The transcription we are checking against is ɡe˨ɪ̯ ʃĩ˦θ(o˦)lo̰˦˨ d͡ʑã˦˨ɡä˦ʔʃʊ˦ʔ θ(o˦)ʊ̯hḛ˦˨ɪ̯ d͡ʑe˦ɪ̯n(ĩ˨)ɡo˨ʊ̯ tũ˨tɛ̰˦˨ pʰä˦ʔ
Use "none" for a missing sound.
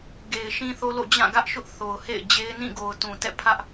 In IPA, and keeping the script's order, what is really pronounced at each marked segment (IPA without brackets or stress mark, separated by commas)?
o˦, o˨, ĩ˦˨